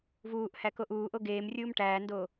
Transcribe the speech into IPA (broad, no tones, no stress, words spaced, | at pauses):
vuːʔhæ koʔuːʔo ɡeːm rʲuːmʈæːndoː